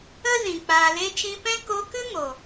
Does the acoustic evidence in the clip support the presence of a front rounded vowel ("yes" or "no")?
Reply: no